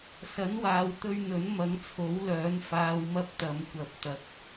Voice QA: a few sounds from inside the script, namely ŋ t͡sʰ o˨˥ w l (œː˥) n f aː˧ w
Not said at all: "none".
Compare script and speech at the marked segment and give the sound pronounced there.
œː˨˥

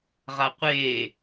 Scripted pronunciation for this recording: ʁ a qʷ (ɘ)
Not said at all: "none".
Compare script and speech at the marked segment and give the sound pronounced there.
e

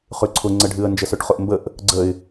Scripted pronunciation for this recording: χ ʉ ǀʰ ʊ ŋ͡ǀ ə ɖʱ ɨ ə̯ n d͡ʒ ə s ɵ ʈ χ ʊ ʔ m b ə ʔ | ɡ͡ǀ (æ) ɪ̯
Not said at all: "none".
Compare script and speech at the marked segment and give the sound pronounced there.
ə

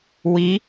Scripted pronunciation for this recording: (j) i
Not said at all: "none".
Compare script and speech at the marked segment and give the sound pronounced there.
w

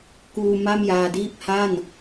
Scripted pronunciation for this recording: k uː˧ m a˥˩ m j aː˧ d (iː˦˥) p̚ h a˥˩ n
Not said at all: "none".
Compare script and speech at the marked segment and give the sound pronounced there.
iː˥˩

